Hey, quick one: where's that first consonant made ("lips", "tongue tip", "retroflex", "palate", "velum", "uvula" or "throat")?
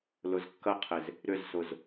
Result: tongue tip